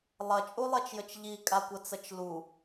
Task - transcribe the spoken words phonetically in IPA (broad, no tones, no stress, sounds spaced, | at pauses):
lˠ ɐ t͡ʃʼ u lˠ ɛ t͡ʃ j ə t͡ʃ ʎ i kʼ a kʷ ɐ t͡s ɐ t͡ʃ l u